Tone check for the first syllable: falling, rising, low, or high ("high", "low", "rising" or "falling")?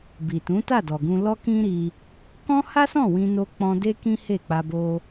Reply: low